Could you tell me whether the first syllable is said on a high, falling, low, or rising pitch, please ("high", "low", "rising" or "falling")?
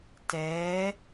rising